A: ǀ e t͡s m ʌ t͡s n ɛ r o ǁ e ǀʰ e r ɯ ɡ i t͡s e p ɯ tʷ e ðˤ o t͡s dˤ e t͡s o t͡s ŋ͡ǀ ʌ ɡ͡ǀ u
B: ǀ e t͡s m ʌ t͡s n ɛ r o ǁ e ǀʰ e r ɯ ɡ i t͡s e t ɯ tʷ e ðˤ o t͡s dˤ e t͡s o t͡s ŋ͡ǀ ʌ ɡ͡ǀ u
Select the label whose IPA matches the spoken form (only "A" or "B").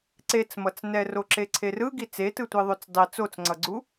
B